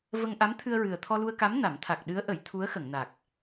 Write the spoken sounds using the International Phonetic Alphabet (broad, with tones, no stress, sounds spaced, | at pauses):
v ə˧ ŋ ʔ a˧˥ m t̪ʰ ɨ˧ ə̯ ɹ ɨ˨˩ ə̯ t̪ʰ ɔ˧ l u˧ ə̯ k a˧˥ m n a˨˩˦ m t̪ʰ a˨˩ k̚ ɗ ɨ˧˥ ə̯ ʔ ə˨˩˦ j t̪ʰ u˧˥ ə̯ x ə˨˩˨ ŋ n a˨˩ k̚